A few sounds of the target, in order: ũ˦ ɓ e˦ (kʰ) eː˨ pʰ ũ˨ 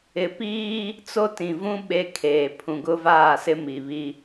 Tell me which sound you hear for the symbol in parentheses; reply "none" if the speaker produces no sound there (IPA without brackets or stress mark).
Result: kʰ